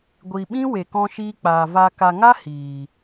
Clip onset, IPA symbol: ɡʷ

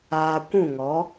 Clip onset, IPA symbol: aː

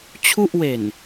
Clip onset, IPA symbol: t͡ɕʰ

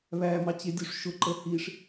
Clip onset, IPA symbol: β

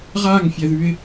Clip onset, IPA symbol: ʁ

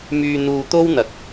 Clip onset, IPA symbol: m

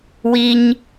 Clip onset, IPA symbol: w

